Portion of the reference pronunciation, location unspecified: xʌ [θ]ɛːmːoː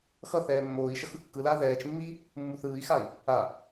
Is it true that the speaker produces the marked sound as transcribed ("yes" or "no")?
yes